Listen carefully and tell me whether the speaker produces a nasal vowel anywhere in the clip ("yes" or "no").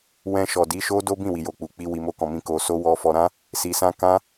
yes